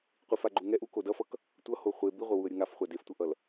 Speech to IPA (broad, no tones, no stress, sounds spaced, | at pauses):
qʷ i f a ɡ͡ǃ u ŋ ɛ ʔ u k o d ʌ f ʌ k | tʷ ʌ h o χʷ e b i ʁʷ ʌ w u ə̯ ɾʲ ɯ ŋ a f χʷ a d e f tʷ ʌ ʔ ʌ l